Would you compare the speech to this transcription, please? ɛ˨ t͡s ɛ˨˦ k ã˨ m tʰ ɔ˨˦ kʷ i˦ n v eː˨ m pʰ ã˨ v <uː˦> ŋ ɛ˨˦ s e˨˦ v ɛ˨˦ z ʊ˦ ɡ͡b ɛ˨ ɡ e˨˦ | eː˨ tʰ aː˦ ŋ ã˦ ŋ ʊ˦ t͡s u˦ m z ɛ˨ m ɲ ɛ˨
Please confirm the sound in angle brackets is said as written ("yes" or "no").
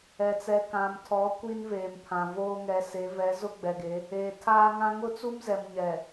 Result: no